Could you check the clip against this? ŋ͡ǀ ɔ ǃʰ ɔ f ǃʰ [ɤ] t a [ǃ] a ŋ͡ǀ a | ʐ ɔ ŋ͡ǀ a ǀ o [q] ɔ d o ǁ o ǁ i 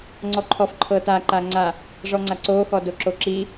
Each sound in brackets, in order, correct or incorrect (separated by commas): correct, correct, incorrect